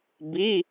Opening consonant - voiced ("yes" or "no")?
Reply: yes